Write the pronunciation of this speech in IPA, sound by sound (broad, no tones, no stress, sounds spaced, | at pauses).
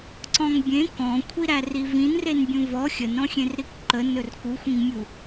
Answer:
ǀ ɔ̃ ŋ bʲ ẽ k ɔ̃ kʷʰ i ɾ æ r i v ĩ n r e n bʲ ũ v ɔ xʲ ə n ɾ ɔ̃ xʲ ẽ r ɾ i k ǃ ə n ɵ r k u xʷ ĩ ŋ mʲ u